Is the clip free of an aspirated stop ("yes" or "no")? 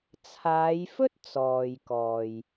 no